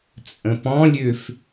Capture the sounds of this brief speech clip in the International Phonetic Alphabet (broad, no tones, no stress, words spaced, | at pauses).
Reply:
t͡sʼə̃pɔ̃lʲøf